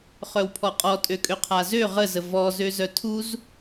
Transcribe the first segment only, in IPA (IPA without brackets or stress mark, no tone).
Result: χ